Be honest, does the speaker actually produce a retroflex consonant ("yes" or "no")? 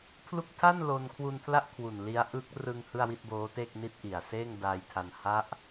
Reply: no